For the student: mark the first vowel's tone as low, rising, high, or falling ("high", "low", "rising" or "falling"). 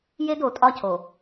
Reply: high